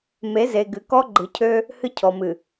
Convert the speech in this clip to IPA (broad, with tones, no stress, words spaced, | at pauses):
me˨˦ ze˨ɡɨ˨ kɔ˦ ɡ͡ǃɨ˨cʰø˦ | hɨ˦cʰɔ˨mɨ˨